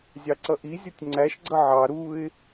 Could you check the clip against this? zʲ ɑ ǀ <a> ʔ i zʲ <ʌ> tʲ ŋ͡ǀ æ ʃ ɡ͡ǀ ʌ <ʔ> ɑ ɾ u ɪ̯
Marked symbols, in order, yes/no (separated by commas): no, yes, no